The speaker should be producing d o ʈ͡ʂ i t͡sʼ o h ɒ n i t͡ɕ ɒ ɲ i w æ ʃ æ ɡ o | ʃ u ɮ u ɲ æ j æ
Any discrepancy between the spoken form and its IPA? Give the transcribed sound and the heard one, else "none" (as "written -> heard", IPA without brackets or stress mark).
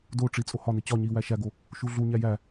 none